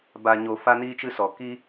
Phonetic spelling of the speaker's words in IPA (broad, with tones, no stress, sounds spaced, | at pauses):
b a˨ ɲ o˨ f a˦ n iː˦ t͡ʃ ɨ˦ s ɔ˨ k i˦